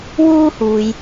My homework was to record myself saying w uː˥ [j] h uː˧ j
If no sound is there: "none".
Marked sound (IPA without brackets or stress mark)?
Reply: none